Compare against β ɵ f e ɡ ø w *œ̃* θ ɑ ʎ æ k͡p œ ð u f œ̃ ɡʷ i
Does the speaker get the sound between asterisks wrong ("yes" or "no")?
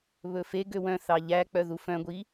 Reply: no